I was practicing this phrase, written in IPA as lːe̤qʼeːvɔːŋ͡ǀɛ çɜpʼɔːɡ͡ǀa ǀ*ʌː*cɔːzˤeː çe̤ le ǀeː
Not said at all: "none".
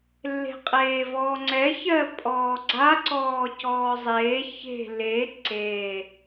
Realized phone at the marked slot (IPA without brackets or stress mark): ɔː